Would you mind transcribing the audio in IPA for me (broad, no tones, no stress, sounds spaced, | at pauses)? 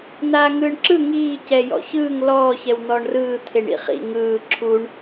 n aː ŋ ɯː ɳ ǁ ɯ ŋ iː c ɛ j ɔ̰ ç ɯː ŋ l ɔː ç ɛ w n̪ ɔː ɳ r ɯː t̪ʰ e ɳ ḭ χ ḭ ŋ ɯː ǁʰ u ɳ